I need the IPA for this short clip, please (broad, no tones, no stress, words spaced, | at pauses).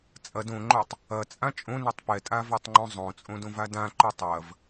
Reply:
t͡sʼɐd õŋ͡ǃotˤ | ɐt͡sʼã t͡ʃʼõnɛtˤ pɛtʼavøtˤŋ͡ǃõ zˤõt͡sʼõdõva dãǃø tˤɐv